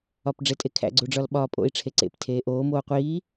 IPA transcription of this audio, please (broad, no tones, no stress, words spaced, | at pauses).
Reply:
ɒpɖ͡ʐetʼekʰæ̰ ɡ͡ǀuɖ͡ʐɒlɓɒːpʼo̰i̯ ʈ͡ʂʰeǀḛp tʰeːʔoː moːqʷiː